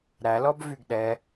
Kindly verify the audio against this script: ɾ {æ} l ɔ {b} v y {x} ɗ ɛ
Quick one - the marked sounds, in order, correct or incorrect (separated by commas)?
correct, correct, incorrect